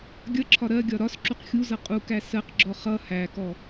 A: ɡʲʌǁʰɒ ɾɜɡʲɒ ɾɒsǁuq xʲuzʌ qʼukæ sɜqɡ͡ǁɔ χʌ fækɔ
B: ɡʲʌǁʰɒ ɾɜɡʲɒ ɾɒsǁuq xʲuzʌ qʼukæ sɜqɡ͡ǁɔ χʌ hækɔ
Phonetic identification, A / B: B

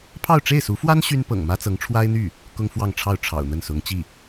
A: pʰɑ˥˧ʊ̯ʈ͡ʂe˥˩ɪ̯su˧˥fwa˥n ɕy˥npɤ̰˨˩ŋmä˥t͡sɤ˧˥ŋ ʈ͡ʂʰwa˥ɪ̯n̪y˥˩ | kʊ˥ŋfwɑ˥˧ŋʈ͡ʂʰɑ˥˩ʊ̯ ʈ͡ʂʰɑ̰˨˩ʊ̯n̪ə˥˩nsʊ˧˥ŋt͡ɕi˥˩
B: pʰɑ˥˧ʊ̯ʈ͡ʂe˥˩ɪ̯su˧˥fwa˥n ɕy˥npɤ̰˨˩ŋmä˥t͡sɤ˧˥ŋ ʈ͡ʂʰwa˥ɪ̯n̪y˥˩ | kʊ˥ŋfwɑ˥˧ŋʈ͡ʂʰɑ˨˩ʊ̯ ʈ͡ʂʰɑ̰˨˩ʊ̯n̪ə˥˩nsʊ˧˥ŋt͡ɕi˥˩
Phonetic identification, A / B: A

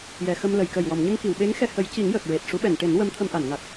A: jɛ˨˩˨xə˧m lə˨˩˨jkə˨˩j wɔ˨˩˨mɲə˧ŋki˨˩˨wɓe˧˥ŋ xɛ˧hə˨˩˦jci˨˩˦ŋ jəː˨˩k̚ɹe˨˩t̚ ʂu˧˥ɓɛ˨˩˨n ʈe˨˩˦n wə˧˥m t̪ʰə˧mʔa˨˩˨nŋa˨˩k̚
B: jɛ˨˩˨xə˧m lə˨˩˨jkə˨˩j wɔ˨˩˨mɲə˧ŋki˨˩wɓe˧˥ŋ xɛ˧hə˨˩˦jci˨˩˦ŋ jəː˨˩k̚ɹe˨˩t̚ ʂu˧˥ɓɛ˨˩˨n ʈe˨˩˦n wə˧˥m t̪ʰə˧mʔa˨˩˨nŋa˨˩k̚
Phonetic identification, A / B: A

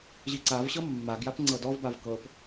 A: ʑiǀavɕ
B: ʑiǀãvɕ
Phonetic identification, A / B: A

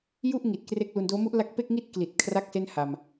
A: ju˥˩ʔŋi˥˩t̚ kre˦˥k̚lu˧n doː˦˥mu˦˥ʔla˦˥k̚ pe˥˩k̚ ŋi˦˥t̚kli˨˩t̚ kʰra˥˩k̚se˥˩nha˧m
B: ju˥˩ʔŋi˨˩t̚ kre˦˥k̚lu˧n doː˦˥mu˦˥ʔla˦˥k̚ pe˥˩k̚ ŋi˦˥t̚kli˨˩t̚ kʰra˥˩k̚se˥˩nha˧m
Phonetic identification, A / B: B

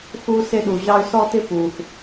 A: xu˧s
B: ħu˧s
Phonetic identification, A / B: A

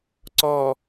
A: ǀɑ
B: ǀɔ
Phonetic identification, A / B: B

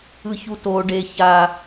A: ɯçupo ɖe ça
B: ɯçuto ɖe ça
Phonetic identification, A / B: B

